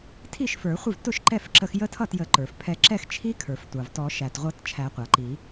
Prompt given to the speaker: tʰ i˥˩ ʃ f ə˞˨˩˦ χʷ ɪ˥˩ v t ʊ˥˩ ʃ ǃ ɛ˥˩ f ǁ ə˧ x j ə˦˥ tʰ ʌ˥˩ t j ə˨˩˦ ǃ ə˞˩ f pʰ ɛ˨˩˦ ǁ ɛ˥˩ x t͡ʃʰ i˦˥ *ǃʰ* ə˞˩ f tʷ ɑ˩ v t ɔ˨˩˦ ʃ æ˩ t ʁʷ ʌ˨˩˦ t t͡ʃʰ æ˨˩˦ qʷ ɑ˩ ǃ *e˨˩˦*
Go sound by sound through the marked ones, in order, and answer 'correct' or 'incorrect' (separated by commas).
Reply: incorrect, incorrect